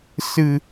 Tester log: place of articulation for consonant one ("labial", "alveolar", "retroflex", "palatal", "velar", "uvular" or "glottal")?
alveolar